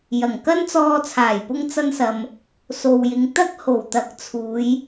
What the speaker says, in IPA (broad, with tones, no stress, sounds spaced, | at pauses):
j ɐ˨˩ ŋ k ɐ˥ n t͡s ɔː˧ t͡sʰ aː˨˩ j p ʊ˧ ŋ t͡s ɐ˧ n s ɐ˨ m | s o˨ w j ɪ˨˧ ŋ t̪ ɐ˥ k̚ h o˨˩ w t̪ ɐ˨˥ k̚ t͡sʰ uː˨˧ j